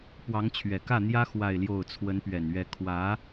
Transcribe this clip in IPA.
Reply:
pwɑ˧˥ŋt͡ɕʰɥɛ˨˩ kä˥˩n̪jä˥ xwa˥˧ɪ̯ljo˥˩ʊ̯ t͡sʰwə˧˥npɥɛ˨˩nɥɛ˧˥ kʰwä˧˥

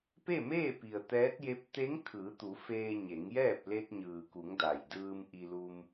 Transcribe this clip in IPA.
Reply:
pe˥˨meː˥˨pi˩ə̯ t̪ɛː˧˥t̚je˧˥p̚ t̪e˧˥ŋ kʰɯː˩˧t̪u˩˧ feː˧ ɲe˩˧ŋjɛː˥˨p̚ le˧t̚ɲɯː˩ku˩˧ŋ da˩jdɯː˧m ʔi˧lu˧m

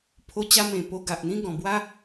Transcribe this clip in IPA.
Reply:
pʰo˧t͡ɕa˧mẽ˨˩ po˧ɡa˨ʔn̪ĩ˦ɡɔ̃˨˩ bwa˦

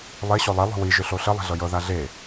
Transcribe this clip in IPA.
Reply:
lˠe ɕolˠe lˠo̤wi ʒʏɬoɬə lˠe̤ɮɤjɤ ðaɮe

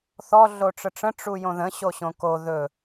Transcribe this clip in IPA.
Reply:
θɔ ɮoʈ͡ʂəʈ͡ʂə̃ ʈ͡ʂujõðə̃ ɕoɕõko ðɵ

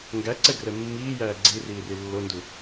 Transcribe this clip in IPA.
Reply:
ŋɡæǀɛɡrɛ mːiːjæː ɡ͡ǀi riːrilːondu

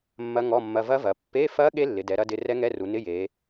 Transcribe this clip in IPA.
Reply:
mːɐ˦˥ŋɔ˧˥˧mːɐ˧˥˧ vɐ˦˥vɐ˩˧ pːe˧˥˧fɐ˦˥ ɠe˦˥lːɪ˩˧dɛ˩˧ ɾɐ˦˥dɪ˧˥˧ rɛ˦˥ŋɛ˧˥˧ru˩˧ nɪ˧˥˧je˩˧

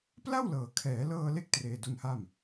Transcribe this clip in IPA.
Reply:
pla˥˩wlɤː˩˦kʰɛː˩˦lɤː˧ le˥˩k̚ treː˧du˧nha˥˩m

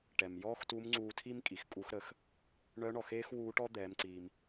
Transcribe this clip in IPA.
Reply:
ʈɛ˩mjɔː˥xtu˧˥m ŋ͡ǀuː˧tʰi˥m kʼi˩xkʼu˧˥xɾə˩˧x | ɳœ˧˥ɳɔ˩xeː˥x wuː˧˥ʈɔ˥ d̪ɛː˩˧mǀiː˩m

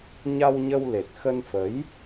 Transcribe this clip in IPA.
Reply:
ɲa˧wɲə˧w le˨˩t̚xə˧nfə˨˦j

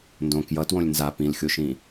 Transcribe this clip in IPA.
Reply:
ndõ kjʌtwõlʲ nza pĩlxʲoʃĩ

